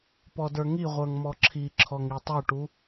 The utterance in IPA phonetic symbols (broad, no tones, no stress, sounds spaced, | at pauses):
p ɔ d ə˞ ŋ i ʁʷ ə˞ ŋ m ɔ ǁʰ i ǁʰ ɔ ŋ i tˤ u ʈ u